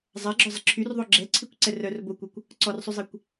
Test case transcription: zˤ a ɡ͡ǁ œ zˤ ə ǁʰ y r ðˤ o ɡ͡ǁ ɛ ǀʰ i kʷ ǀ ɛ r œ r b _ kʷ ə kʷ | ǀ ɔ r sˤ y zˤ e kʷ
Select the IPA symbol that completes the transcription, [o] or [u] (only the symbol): o